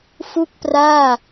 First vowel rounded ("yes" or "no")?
yes